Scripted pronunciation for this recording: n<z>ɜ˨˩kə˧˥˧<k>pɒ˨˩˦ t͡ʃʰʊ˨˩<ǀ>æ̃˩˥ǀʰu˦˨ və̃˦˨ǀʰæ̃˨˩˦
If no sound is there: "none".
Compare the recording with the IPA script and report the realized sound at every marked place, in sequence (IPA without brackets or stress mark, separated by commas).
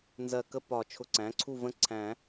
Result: z, none, ǀ